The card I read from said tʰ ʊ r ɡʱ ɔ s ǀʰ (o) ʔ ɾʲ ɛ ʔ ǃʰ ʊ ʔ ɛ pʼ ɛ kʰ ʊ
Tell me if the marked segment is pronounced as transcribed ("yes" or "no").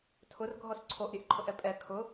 yes